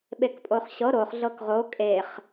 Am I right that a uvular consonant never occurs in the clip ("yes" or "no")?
no